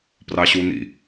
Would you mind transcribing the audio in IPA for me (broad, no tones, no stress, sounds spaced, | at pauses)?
p r ɑ ɕ u n ḭ